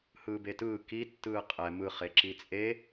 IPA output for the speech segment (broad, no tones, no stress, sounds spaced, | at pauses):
h ɯː b e t ɯː k i tː ɯː qʼ ɛ m ɯ χ e ǁ i t͡sʼ e